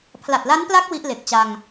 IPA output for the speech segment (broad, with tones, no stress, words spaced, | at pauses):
pʰla˨˩t̚la˦˥npla˦˥k̚ wi˦˥ʔle˨˩k̚t͡ɕa˧ŋ